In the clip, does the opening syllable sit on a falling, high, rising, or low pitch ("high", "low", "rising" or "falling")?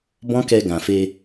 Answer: high